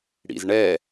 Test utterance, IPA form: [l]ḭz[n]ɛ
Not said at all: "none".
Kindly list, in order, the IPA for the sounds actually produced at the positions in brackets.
ɽ, ɳ

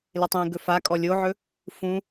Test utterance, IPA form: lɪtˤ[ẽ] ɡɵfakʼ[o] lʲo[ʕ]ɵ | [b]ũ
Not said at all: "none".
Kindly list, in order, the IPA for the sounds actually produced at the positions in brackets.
ĩ, ɔ, ʕ, f

